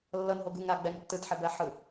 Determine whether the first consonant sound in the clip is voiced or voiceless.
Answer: voiced